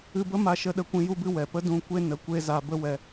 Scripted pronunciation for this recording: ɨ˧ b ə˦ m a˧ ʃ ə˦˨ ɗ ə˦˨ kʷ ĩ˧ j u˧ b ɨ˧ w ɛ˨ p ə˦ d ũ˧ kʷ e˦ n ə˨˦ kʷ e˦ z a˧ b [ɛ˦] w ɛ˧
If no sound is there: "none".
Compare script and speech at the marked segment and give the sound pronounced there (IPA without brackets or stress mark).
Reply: ə˦